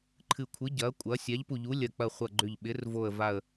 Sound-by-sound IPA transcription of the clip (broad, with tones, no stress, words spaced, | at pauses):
ǃʰɨ˧˩kʷʰɨ˨˥ ɟɐ˨˥kʷʼɐ˨˥ sʲa˨˥ʎpu˧˩ ʎu˨˥lʲɐ˧˩k͡pɐ˧˩χʷɐ˧˩ ɡ͡ǃʏ˧˩ʎɓɪ˨˥rvo˧˩ə̯ va˧˩ə̯